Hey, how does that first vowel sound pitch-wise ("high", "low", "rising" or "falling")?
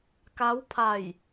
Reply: rising